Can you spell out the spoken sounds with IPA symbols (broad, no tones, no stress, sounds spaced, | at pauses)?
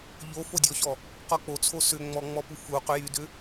ʎ o f o dʲ ɔ ç ɔ | q ɔ k͡p o t͡sʰ o s ʏ ŋ͡m ɔ ŋ͡m ɔ p u f u q ʏ j y d ʏ